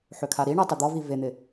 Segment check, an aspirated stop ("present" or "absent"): present